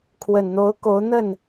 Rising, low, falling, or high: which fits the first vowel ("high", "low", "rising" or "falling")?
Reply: low